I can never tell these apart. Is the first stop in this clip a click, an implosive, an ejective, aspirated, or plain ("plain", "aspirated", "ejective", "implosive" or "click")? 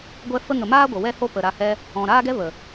plain